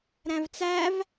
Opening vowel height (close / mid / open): open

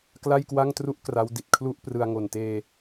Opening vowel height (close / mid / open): open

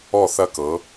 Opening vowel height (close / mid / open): mid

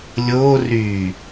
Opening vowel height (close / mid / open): mid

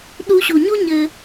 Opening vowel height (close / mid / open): close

